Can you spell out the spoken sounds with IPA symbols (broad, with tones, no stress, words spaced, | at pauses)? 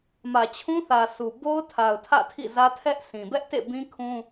mä˨t͡ɕʰũ˦θä˨ sʰu˨ bo˦ʊ̯tʰa˨ʊ̯tʰä̰˦˨ tʰḭ˦˨zä˦ tʰɛ˦ʔ sʰĩ˨ bɛ˦ʔtḛ˦˨bĩ˦ kʰũ˦